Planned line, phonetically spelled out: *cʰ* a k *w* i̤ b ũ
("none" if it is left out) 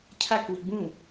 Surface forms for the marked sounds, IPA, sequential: cʰ, w

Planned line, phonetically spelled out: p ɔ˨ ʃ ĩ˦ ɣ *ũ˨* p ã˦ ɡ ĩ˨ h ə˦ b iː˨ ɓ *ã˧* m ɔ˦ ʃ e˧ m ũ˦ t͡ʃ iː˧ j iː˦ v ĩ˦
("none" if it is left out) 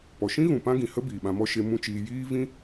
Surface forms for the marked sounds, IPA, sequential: ũ˨, ã˧

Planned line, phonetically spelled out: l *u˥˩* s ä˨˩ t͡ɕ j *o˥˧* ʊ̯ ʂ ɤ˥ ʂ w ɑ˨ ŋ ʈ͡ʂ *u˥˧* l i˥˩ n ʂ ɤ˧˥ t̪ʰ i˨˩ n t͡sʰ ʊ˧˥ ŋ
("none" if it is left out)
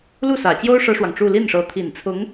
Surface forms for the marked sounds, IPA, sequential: u˥˩, o˥, u˥˧

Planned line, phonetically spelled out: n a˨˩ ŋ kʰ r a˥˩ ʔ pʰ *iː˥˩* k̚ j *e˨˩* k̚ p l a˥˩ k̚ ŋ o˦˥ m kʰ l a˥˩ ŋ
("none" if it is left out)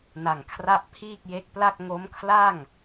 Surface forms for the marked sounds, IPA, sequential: iː˥˩, e˦˥

